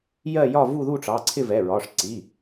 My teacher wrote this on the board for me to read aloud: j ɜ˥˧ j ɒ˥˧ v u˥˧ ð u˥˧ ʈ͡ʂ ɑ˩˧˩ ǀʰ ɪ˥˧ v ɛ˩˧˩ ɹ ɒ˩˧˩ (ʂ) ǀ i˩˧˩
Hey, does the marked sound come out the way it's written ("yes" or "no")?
yes